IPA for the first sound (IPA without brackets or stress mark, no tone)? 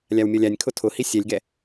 lʲ